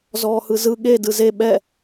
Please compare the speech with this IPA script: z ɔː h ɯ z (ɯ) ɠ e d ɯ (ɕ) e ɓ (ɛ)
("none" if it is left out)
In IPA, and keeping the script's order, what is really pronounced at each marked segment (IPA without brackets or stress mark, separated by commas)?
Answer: ɯ, z, ɛ